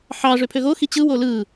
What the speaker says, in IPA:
ħɑ ʐøpʰøɣo xit͡ɕɯ wolɯ

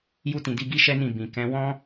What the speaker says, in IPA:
ju˦tĩ˧di˦ ɡi˦ʃɛ˦nĩ˦˨ bĩ˨ kɛ̃˨˦wɔ̃˦

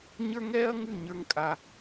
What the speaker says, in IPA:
ɲə˞˦ŋɛː˦ɐ̯ŋʉ˦˨ ɲə˞˦ŋkʼa˦

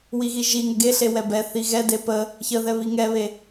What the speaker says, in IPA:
wiɣiʒiŋə ɡeɬe wɛbɛθi ɣɛde pə | çəðɛ βiŋɛβe

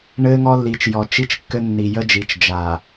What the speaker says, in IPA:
ɳɘː˦ŋɔ˦lːi˨t͡ʃ jɔ˨t͡ʃi˦t͡ʃkːɘ˦ nːi˨jə˦d͡ʒi˨t͡ʃ d͡ʒa˨

